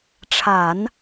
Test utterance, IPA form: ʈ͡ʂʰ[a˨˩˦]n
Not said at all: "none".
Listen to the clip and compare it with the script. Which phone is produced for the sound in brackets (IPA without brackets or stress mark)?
a˨˩˦